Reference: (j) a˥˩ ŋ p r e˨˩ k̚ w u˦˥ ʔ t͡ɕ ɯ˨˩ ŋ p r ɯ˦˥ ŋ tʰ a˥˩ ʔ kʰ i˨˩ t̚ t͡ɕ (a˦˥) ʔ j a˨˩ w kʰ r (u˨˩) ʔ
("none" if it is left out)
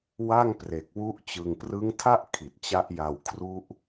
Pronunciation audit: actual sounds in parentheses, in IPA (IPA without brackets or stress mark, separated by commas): w, a˦˥, u˦˥